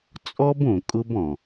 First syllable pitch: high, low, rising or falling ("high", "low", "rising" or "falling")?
high